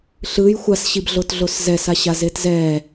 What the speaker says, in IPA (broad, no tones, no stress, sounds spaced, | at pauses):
ɬ ɯ j xʷ a s ɕ i b ɮ o t ɮ o s z ɛ s a ɕ a z e t z ɛ